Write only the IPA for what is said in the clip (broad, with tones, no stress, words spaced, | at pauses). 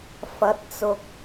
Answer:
fɐ˨˥t̚t͡sʊ˨k̚